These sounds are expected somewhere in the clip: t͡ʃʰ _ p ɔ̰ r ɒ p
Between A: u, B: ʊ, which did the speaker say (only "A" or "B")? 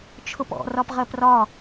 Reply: B